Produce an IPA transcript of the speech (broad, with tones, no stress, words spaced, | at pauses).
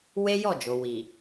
we˦jɔ˦˨d͡ʒo˨ wi˨